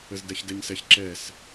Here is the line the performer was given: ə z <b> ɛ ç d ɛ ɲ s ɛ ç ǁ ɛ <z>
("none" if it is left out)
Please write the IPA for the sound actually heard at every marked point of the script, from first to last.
d, s

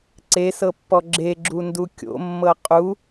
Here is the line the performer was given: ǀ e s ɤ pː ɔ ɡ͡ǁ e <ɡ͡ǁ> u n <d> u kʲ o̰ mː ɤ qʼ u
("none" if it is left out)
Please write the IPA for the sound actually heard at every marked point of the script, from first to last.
ɡ͡ǁ, d

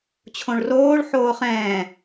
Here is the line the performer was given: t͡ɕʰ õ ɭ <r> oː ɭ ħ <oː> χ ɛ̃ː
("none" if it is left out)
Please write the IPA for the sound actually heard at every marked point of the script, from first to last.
r, oː

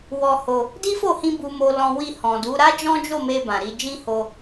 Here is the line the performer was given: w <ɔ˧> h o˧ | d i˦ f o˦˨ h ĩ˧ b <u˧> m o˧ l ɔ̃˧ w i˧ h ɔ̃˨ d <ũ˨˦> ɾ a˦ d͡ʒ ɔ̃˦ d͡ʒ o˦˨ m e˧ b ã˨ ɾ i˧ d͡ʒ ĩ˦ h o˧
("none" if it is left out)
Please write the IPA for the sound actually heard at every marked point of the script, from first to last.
ɔ˧, u˧, u˨˦

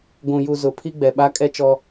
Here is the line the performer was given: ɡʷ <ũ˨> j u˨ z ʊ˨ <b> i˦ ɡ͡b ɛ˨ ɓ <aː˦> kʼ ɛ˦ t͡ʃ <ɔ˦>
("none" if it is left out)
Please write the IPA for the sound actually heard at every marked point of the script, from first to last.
ũ˨, pʰ, a˦, ɔ˦

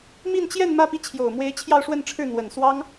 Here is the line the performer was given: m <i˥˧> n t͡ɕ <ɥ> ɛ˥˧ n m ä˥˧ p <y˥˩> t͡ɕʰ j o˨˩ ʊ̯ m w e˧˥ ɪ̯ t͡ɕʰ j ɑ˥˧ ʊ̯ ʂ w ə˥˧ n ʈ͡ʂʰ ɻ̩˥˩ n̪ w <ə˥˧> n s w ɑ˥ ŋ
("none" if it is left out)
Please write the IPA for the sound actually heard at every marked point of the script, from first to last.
i˥˧, j, i˥˩, ə˨˩

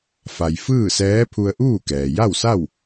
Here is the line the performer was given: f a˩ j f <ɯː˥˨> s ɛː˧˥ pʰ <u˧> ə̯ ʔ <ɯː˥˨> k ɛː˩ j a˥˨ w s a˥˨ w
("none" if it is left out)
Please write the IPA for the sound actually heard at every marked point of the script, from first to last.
ɯː˥˨, u˧, uː˥˨

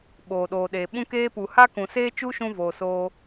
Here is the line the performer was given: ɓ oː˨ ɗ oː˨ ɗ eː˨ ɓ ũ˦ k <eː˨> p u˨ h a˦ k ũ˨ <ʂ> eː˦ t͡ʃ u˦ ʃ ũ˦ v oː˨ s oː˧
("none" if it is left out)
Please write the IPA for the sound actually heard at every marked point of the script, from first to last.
eː˦, s

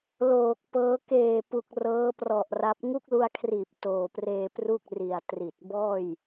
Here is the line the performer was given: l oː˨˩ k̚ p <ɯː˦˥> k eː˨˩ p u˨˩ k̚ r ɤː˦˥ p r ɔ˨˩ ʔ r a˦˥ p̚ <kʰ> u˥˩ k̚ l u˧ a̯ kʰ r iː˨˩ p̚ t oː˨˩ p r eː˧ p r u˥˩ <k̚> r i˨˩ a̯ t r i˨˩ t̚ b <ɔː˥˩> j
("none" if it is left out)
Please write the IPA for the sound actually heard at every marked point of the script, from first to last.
ɤː˦˥, ŋ, k̚, ɔː˥˩

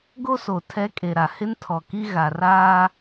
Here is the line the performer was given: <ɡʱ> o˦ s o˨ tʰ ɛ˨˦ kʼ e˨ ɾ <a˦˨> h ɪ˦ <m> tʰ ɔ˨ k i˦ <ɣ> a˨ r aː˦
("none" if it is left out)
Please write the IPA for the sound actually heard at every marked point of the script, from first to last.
ɡ, a˨, n, ɣ

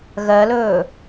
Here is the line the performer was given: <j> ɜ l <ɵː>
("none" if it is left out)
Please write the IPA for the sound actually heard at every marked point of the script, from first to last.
ɣ, ɵː

